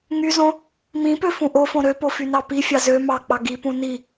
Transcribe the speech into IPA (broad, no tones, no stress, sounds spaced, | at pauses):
ŋ y z õ | m ĩ p ø f ũ ʔ o f õ ɾ ø p o f y n ɑ p i fʲ ɑ z ø m ɑ k͡p ɑ ɡ i p ũ n i